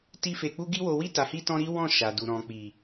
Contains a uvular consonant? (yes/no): no